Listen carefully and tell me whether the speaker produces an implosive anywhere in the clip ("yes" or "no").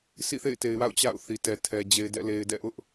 no